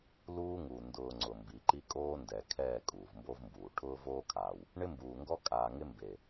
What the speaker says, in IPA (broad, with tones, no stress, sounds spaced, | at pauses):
l uː˦ ŋ u˨ n d ʊː˨ ŋ͡ǀ ʊ˨ m b i˨ ǃ i˦ kʼ oː˦ n d ɛ˨ kʰ ɛː˦˨ kʼ uː˨ v m b o˦ v m b uː˨ ʈʰ ʊː˦ v oː˦ kʰ aː˨ w | ɳ ɪ˦ m b uː˨ ŋ ɡ ɔ˦ kʼ aː˨ ŋ ɪ˦ m b e˨